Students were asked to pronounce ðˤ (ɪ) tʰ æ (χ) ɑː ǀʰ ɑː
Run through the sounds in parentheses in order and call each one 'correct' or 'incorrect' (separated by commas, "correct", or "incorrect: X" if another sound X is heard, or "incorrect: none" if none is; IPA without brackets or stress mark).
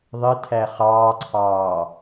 correct, correct